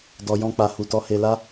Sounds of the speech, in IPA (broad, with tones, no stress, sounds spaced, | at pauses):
d ɔ˨ j ɔ̃˧ k͡p a˨ h u˨ t ɔ˧ h e˧ l a˦